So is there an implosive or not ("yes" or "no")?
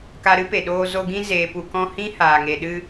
yes